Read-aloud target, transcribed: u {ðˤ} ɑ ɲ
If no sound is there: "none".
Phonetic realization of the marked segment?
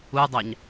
dˤ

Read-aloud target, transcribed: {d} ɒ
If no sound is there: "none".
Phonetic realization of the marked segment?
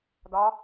d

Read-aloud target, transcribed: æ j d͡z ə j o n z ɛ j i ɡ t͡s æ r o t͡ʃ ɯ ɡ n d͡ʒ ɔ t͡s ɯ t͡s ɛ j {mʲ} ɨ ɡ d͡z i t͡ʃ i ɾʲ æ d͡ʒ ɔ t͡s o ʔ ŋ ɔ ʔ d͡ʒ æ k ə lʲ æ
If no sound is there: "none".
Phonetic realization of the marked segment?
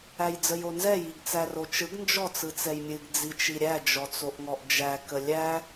mʲ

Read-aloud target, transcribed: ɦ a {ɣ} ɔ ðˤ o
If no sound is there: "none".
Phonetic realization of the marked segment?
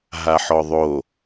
ħ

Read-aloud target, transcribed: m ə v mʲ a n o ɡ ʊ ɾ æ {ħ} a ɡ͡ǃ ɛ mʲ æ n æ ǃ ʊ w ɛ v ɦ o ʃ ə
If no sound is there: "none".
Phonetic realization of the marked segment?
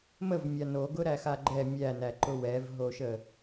x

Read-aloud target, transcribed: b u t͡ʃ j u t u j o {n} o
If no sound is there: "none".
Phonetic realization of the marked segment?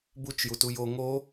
ŋ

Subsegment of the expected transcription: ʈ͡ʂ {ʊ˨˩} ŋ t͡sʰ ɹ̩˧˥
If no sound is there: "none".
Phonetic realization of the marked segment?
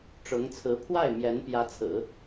ʊ˧˥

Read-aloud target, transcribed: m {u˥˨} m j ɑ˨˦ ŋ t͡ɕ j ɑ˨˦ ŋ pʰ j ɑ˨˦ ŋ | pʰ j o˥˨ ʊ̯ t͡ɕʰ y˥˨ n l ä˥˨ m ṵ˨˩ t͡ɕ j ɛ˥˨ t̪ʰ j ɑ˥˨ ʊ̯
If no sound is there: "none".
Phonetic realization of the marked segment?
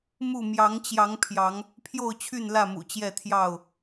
u˥˨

